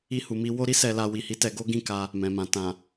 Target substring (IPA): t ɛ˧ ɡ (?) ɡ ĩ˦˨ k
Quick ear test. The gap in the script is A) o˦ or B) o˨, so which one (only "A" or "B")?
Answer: A